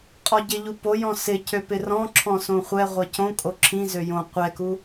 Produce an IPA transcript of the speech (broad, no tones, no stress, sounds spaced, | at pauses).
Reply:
qʼ ɔ ɟ ɪ ʎ u p o j ɔ̃ s ɪ c ø p ɪ r ɔ̃ ǁʰ ɔ̃ s õ χʷ ɛ ʁʷ ɛ c õ kʼ o ǁʰ ĩ z ø j õ qʷ ɛ k u